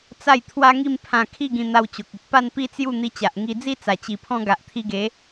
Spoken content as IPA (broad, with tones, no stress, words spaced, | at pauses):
t͡sa˥˧j t̪ʰwa˦ŋi˥˧mpʰã˧ kʰi˥˧ɡĩ˧n̪a˧w t͡ɕo˨k̚i˨t̚ pa˥˧npi˦t͡sju˥˧ n̪i˧t͡ɕa˨ʔŋi˧d͡zi˦ t͡sa˨˩t͡ɕi˨˩pʰɔ̃˧ ɡa˨ʔt̪ʰi˧ɡe˨˦